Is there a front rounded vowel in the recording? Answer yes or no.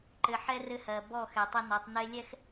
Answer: no